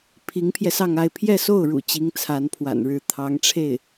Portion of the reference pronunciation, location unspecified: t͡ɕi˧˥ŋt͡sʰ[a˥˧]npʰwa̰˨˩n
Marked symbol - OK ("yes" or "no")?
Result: no